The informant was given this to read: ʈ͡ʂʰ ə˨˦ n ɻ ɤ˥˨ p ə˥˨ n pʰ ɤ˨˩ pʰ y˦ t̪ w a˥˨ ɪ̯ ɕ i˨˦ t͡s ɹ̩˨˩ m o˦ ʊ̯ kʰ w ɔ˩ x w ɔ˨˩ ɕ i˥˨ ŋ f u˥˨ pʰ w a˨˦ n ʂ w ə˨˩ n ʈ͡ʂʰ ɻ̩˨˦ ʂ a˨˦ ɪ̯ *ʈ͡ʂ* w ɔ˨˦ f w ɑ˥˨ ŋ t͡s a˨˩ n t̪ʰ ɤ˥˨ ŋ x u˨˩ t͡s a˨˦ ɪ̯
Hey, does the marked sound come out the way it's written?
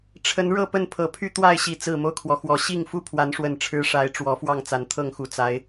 yes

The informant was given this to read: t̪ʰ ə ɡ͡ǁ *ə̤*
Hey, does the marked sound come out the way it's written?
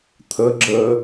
no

